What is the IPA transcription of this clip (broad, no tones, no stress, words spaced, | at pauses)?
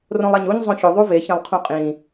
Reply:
rõlˠæɲuɲ zˤõço ðˤuve çẽlˠqʰũqʼĩ